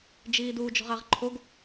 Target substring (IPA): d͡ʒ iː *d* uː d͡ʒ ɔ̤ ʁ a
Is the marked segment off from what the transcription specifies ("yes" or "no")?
no